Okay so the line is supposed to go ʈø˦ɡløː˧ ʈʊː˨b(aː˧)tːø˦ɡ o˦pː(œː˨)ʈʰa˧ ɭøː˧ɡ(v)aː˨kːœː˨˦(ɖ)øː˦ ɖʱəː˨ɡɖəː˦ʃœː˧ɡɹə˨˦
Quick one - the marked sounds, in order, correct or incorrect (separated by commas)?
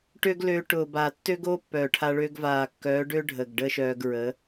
incorrect, correct, correct, correct